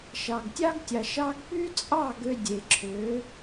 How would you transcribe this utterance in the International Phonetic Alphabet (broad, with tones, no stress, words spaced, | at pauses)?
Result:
ʃɑ˨ɡtʲɑ˦ɡ tʲɑ˨ʃɑ˧ɡ py˦t͡sʼɑ˦˨ ɡø˧dʲe˨ǁʰø˨˦